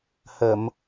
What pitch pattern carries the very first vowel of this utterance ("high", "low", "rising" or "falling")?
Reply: low